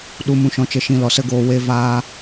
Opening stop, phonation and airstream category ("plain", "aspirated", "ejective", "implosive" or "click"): implosive